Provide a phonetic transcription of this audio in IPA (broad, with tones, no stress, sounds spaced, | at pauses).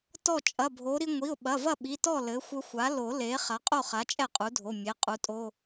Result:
t ɔ˥˩ t͡ʃʼ ɐ˩˧˩ bʱ o˩˥ ɾ i˧ ŋʷ i˩˧˩ ʊ̯ ɓ ɐ˩˧˩ v ɐ˥˩ ɓ i˩˧˩ t ɔ˥˩ l ɘ˩˥ xʷ ɘ˧ xʷ a˩˥ l o˨˩˦ l e˩˥ χ a˩˥ qʼ o˥˩ χ a˩˥ t͡ʃʼ ɛ˥˩ qʼ u˩˥ dʱ o˩˧˩ mʲ e˩˧˩ qʼ u˩˥ tʼ o˧˥˧